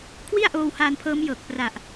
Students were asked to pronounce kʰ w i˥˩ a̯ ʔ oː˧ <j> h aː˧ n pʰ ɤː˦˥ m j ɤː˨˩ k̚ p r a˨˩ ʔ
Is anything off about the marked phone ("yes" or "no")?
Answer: yes